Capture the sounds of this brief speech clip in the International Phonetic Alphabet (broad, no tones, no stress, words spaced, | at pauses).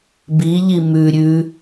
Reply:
biʎi mʉ ɾʲʉ